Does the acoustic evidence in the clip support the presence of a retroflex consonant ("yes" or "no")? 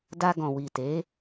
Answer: no